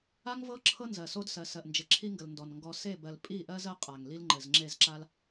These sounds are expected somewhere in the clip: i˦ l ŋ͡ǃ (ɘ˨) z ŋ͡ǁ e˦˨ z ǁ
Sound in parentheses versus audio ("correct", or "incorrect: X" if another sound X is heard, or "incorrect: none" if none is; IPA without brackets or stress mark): correct